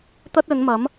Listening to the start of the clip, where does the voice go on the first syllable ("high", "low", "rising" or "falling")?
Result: high